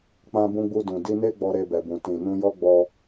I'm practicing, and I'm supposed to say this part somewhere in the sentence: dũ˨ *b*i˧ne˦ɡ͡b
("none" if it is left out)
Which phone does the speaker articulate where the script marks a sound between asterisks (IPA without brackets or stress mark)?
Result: d